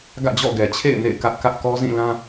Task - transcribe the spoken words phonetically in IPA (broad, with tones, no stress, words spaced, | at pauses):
ɡä̰˦˨d͡ʑɔ̰˦˨ɡɛ˨t͡ɕʰḛ˦˨ɪ̯ nḛ˦˨ɪ̯kä˦ʔkä˦ʔ kɔ˦zĩ˦˨lã˦